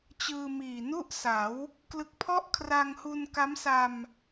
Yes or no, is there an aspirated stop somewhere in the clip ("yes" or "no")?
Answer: yes